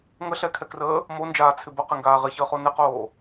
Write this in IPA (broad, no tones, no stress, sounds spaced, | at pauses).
ŋ ə ɬ ɛ kʰ ɛ k r əː | m o n d͡ʒ aː t͡sʰ ɪ b ə q ɪ ŋ ɡ aː ʁ ɪ ç əː χ o n ɪ q oː